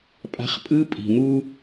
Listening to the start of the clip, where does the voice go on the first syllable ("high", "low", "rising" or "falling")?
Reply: high